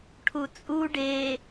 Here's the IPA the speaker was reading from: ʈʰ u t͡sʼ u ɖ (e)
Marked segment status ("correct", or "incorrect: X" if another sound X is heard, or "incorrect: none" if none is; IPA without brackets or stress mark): correct